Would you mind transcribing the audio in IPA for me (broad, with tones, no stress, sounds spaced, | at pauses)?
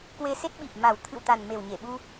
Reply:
k w e˧ s e˦˥ t̚ ɓ i˨˩ p̚ m a˨˩ w t̪ʰ ɨ̰˧˨ w t̪ a˨˩ n m e˨˩ w ɲ e˧˩ ɓ u˧